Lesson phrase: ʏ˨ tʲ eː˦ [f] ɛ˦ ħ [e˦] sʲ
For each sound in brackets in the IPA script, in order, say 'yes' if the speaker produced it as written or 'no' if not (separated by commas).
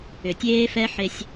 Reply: yes, yes